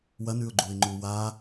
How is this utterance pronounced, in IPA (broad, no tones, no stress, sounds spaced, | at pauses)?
w ɐ n ʉ ʊ̯ ɡ͡ǃ u ɪ̯ ŋ͡ǃ u w a